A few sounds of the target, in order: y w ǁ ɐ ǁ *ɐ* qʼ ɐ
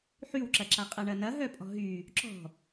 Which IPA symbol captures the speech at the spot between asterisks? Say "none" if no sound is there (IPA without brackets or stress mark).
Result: a